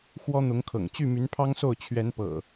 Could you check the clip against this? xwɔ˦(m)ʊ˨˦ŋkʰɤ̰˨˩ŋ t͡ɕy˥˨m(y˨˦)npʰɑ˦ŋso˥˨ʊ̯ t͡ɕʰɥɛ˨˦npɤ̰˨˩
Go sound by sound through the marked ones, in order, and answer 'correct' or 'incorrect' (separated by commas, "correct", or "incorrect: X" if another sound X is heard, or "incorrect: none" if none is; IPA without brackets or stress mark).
incorrect: n̪, correct